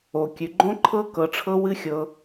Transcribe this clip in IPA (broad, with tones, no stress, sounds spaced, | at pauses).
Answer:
o˨ kʲ ʉ˨ ɡ͡ǃ õ˦ ǃʰ ɤ˦ k ɤ˧ ʈ͡ʂʰ ɤ˦ w ɨ˦ xʲ ɤ˧